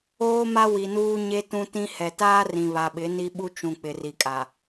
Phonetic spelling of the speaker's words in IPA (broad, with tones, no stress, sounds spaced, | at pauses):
oː˦ m a˦ w i˨ n uː˦ ɲ e˦ t ũ˦ t ĩ˦ h ɛ˨ t aː˦ r ĩ˨ β a˨ ɓ ɪ˨˦ n i˦ ɓ u˦ t͡ʃ ũ˨ k͡p ɪ˨ r i˨ kʼ a˨